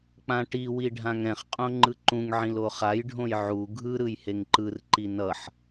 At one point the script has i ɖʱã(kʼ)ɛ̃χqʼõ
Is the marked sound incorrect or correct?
incorrect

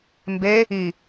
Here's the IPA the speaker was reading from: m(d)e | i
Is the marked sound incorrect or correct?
incorrect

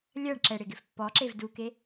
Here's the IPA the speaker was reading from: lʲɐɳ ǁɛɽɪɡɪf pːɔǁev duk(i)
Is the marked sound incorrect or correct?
incorrect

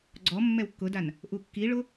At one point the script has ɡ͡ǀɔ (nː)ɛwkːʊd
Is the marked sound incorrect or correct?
incorrect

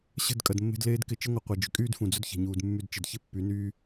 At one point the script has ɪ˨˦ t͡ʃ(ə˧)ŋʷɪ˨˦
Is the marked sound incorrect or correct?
incorrect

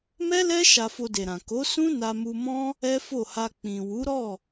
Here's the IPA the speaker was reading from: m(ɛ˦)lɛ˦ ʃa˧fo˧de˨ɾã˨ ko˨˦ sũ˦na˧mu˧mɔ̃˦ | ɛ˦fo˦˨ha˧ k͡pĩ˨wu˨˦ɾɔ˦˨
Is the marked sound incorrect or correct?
correct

